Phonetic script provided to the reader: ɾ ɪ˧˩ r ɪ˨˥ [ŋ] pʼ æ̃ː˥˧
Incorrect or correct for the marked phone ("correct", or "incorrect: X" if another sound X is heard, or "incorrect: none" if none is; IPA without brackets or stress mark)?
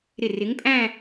correct